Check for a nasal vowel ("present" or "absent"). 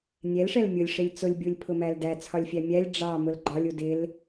absent